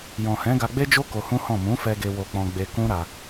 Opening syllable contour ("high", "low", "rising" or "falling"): low